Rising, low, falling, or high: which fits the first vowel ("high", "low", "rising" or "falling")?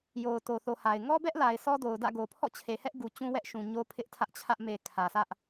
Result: low